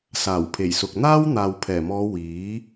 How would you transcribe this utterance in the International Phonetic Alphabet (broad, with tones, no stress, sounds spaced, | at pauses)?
s aː˨˩ w pʰ e˨˩ j s ʊ˨ k̚ n̪ aː˥ w n̪ aː˨ w pʰ ɛː˨˩ m ɔː˨˧ w iː˨˥